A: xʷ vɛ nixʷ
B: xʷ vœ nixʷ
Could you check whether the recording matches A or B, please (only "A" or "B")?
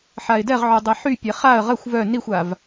B